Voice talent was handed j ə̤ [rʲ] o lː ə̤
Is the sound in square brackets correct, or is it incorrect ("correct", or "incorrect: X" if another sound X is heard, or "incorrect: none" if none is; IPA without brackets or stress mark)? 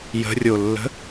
correct